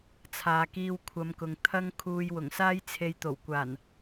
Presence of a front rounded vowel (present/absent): absent